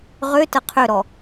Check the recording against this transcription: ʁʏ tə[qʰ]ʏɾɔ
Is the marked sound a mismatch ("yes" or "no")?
no